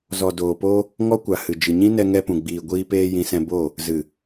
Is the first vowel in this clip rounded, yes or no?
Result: yes